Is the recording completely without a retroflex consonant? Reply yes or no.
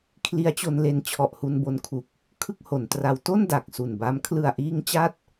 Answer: yes